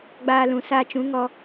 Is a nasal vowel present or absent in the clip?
present